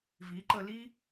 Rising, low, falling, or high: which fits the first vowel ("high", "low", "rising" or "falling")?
rising